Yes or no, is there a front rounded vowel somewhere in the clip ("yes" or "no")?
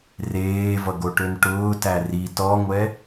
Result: yes